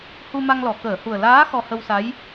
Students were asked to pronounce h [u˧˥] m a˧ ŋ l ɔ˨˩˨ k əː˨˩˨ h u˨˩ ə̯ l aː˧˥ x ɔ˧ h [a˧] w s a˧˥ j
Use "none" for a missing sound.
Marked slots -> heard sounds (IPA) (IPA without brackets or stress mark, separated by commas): u˧, ə˧